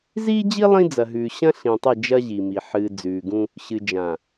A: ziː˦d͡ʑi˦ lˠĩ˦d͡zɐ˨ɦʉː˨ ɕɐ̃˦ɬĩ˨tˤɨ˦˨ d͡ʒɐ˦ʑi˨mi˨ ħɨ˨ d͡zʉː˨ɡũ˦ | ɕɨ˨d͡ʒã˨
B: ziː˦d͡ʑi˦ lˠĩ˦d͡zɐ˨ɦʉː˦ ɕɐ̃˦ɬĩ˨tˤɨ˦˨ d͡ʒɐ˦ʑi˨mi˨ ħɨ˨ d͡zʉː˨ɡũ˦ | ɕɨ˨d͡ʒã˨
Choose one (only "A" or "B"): A